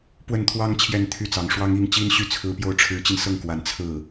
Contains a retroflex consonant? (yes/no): yes